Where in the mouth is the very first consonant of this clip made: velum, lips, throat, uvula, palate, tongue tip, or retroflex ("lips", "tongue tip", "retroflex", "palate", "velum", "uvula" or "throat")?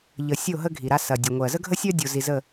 palate